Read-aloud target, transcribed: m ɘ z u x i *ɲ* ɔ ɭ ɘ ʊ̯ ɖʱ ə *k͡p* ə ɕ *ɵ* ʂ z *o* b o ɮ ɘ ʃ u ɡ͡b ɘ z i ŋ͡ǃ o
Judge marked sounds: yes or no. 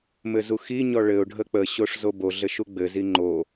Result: yes, yes, no, yes

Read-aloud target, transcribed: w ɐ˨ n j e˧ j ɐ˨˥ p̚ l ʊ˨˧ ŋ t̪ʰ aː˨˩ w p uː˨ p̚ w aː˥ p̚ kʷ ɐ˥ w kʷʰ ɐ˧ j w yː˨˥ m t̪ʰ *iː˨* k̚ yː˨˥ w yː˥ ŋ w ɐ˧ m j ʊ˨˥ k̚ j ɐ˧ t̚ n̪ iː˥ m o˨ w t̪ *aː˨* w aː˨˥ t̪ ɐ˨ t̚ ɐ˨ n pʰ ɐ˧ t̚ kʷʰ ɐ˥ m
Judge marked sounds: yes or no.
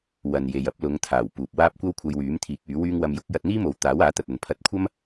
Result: no, no

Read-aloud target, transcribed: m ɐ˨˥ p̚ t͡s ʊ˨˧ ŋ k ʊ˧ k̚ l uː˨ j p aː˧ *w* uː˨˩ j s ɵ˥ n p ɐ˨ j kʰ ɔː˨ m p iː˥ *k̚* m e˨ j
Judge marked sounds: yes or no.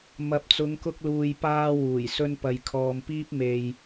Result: yes, no

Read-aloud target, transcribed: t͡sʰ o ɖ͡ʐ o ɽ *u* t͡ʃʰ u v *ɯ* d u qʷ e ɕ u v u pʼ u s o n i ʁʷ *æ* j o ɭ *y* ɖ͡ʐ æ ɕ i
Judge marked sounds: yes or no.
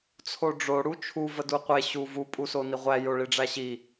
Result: yes, no, yes, no

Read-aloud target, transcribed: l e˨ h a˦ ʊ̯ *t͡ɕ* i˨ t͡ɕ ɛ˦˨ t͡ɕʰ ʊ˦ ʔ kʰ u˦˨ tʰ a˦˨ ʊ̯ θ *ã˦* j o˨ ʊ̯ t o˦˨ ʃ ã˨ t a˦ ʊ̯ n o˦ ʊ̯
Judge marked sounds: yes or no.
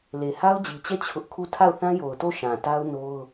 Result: no, yes

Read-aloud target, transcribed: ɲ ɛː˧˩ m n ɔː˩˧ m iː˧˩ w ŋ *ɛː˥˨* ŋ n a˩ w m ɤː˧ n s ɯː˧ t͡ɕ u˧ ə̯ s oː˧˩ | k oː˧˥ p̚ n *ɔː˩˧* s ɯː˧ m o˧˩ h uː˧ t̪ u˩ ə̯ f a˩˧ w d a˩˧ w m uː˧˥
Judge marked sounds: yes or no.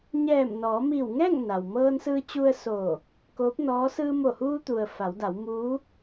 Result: yes, no

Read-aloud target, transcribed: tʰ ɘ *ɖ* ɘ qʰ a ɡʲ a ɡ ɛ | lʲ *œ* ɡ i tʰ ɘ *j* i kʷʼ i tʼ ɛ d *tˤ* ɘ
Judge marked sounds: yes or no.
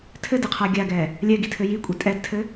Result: no, no, yes, no

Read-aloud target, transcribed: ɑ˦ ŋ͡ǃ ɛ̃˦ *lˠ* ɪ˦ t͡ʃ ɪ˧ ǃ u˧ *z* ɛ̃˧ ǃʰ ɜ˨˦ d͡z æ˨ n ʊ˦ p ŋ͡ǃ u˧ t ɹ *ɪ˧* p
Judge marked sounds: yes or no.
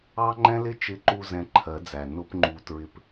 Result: no, yes, yes

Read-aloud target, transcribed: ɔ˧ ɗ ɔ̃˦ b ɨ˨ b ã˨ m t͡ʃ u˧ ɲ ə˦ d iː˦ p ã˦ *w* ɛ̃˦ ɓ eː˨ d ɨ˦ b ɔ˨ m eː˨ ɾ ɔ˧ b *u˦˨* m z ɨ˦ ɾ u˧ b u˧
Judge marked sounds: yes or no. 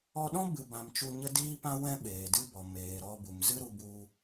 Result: yes, no

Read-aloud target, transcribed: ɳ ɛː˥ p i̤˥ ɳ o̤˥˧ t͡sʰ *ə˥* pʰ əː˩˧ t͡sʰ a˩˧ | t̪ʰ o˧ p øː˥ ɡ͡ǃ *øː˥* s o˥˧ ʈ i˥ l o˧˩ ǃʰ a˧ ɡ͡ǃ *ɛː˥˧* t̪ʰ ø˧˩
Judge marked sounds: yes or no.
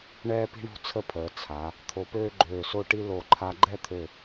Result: yes, no, no

